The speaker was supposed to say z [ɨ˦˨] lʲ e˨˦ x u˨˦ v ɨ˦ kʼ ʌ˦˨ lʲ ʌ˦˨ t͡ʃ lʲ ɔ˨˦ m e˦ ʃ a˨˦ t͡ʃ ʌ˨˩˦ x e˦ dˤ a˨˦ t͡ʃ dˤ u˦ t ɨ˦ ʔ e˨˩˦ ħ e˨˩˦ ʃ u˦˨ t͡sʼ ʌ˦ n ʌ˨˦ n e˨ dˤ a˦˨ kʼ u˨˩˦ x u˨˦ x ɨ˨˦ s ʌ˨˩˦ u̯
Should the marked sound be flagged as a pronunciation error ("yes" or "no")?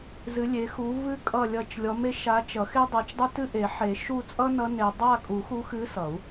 yes